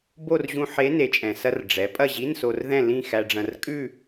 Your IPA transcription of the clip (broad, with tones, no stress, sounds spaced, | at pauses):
b o˥˧ r ʑ ũ˧ ħ e˧˥ n e˩˧ t͡ʃʼ ɛ̃˩ s ɐ˧ r ɖ͡ʐ ɛ˩˧ pʼ ɐ˥˧ ʑ i˧˥˧ n s o˧ r ð ɛ̃˥˧ l ĩ˥˧ x æ˧ ɖ͡ʐ ɐ̃˧ r kʼ ʉ˥˧